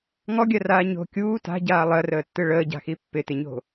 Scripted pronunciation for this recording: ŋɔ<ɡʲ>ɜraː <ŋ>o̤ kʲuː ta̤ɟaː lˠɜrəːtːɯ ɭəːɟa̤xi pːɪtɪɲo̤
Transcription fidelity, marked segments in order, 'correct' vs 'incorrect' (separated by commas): correct, incorrect